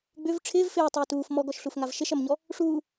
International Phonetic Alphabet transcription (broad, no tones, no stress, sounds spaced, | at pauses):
ɡ͡b ʏ v ʈ͡ʂʰ ɪː v f ɪː tˤ uː t uː f m ɔ ɡ ɔ ʃ ɬ u f ŋ a v ʃ ɪ ʃ ɐ m ɲ ɔ | ʂ uː